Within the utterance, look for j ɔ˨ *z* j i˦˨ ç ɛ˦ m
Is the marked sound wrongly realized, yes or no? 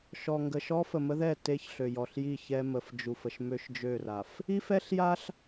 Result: yes